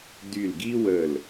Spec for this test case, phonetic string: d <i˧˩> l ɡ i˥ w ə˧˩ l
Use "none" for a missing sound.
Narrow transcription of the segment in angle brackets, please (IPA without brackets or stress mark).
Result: y˧˩